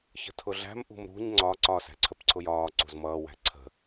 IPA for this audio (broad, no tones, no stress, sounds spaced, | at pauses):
ç ə̤ tʰ ʊ ɮ æ̤ m ʔ ṳ m ɾ ṳ ɲ ŋ͡ǀ ɒ ǀ ɒ s æ̤ ǀʰ ə p ǀʰ ʊ j ɒː ǀ ṳ z m ʌː w æ̤ ǀʰ ə̤